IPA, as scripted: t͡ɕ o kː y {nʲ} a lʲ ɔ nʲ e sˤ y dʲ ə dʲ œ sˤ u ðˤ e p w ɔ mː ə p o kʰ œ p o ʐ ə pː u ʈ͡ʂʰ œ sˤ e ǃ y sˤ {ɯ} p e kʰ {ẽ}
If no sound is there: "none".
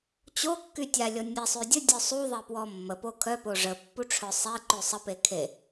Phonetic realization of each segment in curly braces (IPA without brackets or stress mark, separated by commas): tʲ, ə, e